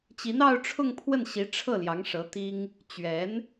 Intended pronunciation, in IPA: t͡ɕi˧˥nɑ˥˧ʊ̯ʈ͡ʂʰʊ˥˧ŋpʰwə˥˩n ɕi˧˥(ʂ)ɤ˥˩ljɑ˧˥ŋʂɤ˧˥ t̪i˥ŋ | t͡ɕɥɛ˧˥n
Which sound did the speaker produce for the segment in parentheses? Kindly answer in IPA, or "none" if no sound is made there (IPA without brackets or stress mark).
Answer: ʈ͡ʂʰ